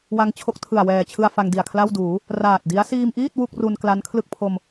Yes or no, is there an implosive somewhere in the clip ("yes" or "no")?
no